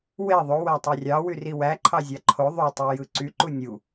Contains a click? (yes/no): yes